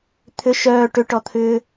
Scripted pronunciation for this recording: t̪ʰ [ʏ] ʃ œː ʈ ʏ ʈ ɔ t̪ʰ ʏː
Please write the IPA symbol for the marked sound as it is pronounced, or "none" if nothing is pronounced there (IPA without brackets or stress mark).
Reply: ʏ